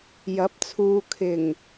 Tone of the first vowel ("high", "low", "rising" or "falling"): rising